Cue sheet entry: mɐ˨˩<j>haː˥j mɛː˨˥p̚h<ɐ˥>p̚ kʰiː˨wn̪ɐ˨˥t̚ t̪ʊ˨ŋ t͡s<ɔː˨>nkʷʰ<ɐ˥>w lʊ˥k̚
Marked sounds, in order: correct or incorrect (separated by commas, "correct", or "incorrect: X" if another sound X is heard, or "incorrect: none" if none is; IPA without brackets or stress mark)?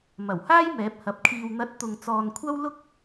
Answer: incorrect: w, incorrect: ɐ˨˥, correct, correct